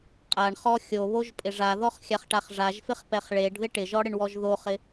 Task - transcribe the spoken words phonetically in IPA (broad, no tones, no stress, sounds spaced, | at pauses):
qʼ a ɳ χ ɔ xʲ o β o ʒ pʼ ɪ ʐ a ð ɔ χ xʲ a χ ʈ a χ ʐ a ʒ f ɪ χ p ɛ χ ɭ e ɖ ð ɪ ʈ ɪ ʒ ɔ ɽ ɪ ɳ w ɔ ʒ ð o χ ɪ